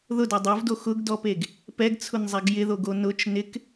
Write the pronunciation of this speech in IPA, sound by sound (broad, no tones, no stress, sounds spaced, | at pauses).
ð ʊ d ɔ dˤ o v d o x ʊ ɡ d ɔ p e ɡ | p ɛ ɡ t͡sʰ ʊ n zˤ ɛ ɡ j ɪ ð o ɡ o n ʊ t͡ʃ n ɪ k